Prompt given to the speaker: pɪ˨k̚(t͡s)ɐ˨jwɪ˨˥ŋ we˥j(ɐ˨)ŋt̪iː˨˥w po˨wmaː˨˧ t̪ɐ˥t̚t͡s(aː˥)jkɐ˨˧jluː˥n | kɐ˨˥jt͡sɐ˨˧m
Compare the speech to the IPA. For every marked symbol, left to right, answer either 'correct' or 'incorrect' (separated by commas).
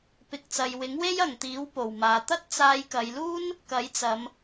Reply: correct, correct, incorrect